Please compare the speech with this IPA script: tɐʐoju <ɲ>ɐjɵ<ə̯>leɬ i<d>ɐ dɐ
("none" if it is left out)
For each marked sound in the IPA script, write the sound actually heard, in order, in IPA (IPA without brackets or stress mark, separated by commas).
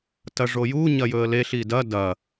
ɲ, ə̯, d